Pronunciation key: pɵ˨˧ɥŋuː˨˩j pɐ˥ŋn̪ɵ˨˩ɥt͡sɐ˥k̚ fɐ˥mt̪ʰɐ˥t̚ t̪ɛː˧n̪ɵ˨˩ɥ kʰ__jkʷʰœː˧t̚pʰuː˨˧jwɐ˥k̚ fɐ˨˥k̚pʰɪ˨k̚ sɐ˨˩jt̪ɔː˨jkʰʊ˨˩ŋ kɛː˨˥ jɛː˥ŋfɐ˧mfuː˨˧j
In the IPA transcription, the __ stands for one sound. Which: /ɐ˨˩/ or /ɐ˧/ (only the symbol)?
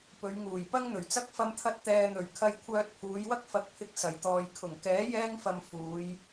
ɐ˧